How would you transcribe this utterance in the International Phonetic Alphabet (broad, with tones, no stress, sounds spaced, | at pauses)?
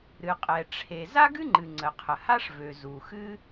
ɾ ɨ˩ qʼ ɛ˩ ʈ͡ʂʰ e˩ z a˥ ɡ ɨ˥ ŋ͡ǃ ɨ˩ ŋ͡ǀ ə˩ qʰ ə˩ h a˥ ʂ v ø˩ z u˩ x ɨ˥